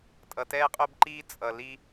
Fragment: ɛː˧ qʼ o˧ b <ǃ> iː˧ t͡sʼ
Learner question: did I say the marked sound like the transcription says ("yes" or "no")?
yes